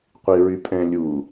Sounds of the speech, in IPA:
qʷ i ɹ y pʼ ɛ̃ lʲ u

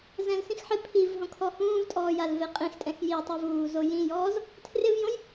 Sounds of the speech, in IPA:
z ɛ̃ l s ĩ x ħ ɪ pʰ i v ɦ õ kʰ ɔ h ũː v tʼ ɔː j a l v e qʼ ĩ x tʼ ɛ̃ x j i tˤ o v uː z o j ĩ j ɔː z | tʰ r ɪ v j õ j

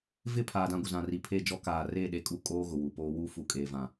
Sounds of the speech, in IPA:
v ɪ˦˨ pʰ aː˨ d ã˦˨ ɡʷ ɪ˨ z ã˨ r i˨ pʰ e˦˨ d͡ʒ ɔ˦ k aː˨ r e˦˨ ɗ e˦ kʼ u˦ kʼ oː˦ ɣ ʊ˨ w u˨ p oː˦ w u˦˨ f u˨ kʼ eː˨ v ã˨

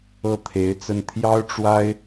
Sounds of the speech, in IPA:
ɤ˥˩ t̪ʰ e˧˥ ɪ̯ t͡s ə˥˩ n t̪ʰ j ɑ˥ ʊ̯ ʈ͡ʂ w a˥ ɪ̯

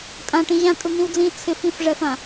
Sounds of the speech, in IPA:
tʼ ã ʈ ĩ ʑ ã tʼ u n̪ ĩ w d͡z ĩ t͡sʰ ɪ f ĩ f ʐ ɛ f ã

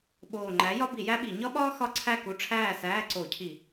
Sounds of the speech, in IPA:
ɓ oː˨˩ ŋ͡ǃ æ˨˥ j ɒ˥ b i˧˩˧ j æ˥ ɓ i˧˩˧ ɲ ɒ˥ ɓ ɒː˥ x ɒ˥ ǀʰ æ˥˨ k u˨˥ ʈ͡ʂʰ æː˥˨ s æː˧˥˧ ǀ o˧˩˧ cʰ i˧˩˧

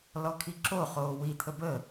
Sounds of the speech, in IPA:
l ɔ kʰ i ǁ o χ oː w i t̪ʰ ə b ə

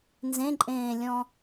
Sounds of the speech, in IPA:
n z ẽ ǃʼ ẽː lʲ ɔ̃

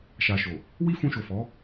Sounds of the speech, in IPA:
ʃ a˨ ʃ o˨ | w i˦ f ũ˧ ʃ o˨ f ɔ˨˦

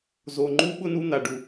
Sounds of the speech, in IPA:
z o˨ ŋ͡ǃ u˦ ɓ ʊ˦ n u˦ n̪ a˨ ɖ u˨

